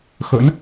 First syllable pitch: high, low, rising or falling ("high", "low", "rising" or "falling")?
rising